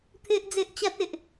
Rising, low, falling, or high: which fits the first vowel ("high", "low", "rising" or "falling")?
high